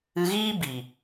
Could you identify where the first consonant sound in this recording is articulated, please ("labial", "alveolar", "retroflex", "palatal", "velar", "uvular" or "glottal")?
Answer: velar